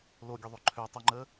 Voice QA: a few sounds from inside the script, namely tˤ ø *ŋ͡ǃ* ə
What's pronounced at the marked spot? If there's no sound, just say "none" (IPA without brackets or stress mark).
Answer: ŋ͡ǃ